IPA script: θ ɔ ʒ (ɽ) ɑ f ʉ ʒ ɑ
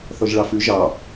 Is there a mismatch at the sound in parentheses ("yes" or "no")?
yes